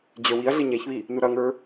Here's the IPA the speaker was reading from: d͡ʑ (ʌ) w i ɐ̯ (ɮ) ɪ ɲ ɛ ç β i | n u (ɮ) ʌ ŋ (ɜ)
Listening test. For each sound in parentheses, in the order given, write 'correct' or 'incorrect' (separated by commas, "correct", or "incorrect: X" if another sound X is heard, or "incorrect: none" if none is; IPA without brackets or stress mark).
incorrect: ə˞, correct, incorrect: ɾ, incorrect: ə˞